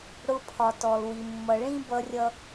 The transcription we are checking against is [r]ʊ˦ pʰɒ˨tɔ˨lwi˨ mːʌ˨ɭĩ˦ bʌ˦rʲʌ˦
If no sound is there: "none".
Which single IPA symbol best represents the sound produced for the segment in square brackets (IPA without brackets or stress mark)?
ɽ